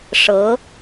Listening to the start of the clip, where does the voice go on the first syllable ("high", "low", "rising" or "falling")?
rising